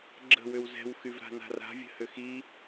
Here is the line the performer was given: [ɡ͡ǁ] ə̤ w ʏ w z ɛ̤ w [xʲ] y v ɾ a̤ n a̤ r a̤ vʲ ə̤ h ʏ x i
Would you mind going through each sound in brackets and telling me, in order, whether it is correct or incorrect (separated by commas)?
correct, incorrect